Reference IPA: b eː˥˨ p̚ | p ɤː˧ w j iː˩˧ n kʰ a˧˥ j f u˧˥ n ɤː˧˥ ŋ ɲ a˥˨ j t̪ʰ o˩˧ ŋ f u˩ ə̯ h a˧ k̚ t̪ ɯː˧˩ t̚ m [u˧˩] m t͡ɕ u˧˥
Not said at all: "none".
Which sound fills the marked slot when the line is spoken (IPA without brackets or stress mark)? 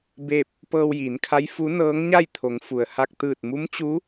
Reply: u˧˥